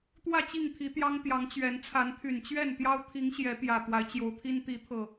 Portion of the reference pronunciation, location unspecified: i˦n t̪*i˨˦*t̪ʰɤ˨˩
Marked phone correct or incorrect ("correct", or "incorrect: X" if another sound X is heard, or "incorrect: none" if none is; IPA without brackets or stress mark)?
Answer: correct